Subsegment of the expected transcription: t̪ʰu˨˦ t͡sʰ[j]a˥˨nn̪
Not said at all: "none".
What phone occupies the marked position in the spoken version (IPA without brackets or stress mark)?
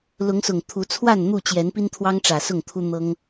w